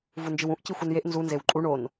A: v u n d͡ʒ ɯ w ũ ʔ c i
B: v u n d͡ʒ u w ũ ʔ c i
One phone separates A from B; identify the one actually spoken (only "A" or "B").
A